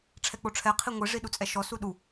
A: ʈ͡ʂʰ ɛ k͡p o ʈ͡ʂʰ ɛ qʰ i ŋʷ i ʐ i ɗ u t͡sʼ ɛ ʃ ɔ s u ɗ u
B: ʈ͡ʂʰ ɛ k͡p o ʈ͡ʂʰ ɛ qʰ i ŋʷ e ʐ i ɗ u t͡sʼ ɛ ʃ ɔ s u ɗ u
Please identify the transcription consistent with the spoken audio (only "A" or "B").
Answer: B